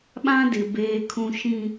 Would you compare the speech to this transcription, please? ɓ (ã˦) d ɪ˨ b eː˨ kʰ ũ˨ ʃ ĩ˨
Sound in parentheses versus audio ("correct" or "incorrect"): correct